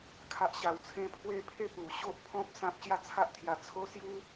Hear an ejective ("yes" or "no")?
no